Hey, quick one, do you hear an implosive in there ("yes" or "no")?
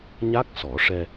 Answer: no